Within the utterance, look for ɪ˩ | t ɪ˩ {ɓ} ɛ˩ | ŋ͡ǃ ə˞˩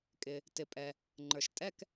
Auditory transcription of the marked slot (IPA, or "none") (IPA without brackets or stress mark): pʼ